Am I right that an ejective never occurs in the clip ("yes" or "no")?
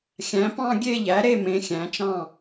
yes